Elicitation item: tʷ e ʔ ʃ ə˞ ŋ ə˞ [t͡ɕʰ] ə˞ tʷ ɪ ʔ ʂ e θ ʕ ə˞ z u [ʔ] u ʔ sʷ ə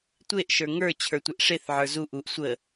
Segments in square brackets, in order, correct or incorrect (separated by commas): correct, correct